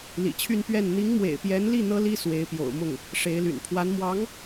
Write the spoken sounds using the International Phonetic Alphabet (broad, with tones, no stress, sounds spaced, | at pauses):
l ḭ˨˩ t͡ɕʰ y˥˧ n p ɥ ɛ˥˩ n n̪ i˧˥ ŋ m w ḛ˨˩ ɪ̯ p j ɛ˧˥ n l i˥˩ n̪ ɤ˥ l i˥ s w e˧˥ ɪ̯ p j o̰˨˩ ʊ̯ m ʊ˥˩ ŋ | ʂ e˧˥ ɪ̯ l y̰˨˩ n pʰ w a˧˥ n m w ɑ˧˥ ŋ